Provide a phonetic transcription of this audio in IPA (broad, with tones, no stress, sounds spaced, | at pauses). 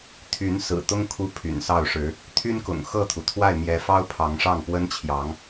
t̪ʰ y˨˦ n s ɹ̩˨˩ t̪ ʊ˦ ŋ kʰ u˥˨ pʰ y̰˨˩ n s ɑ˥˨ ʊ̯ ʂ ɻ̩˨˦ | t̪ʰ y˦ n k ʊ̰˨˩ ŋ x ɤ˥˨ t̪ʰ u˩ t̪ʰ w a˥˨ ɪ̯ m j ɛ˨˦ f ɑ˦ ʊ̯ pʰ ɑ˨˦ ŋ ʂ ɑ˥˨ ŋ p w ə˦ n t͡ɕʰ j ɑ˨˦ ŋ